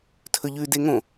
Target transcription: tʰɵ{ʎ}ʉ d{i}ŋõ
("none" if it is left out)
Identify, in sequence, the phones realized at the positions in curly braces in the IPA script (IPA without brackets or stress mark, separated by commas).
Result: ʎ, e